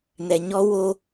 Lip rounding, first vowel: unrounded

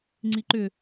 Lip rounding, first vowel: unrounded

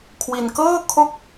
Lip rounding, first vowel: unrounded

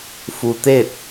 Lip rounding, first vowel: rounded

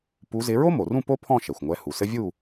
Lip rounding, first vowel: rounded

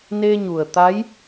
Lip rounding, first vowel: unrounded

